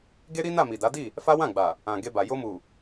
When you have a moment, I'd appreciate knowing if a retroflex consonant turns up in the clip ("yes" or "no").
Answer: no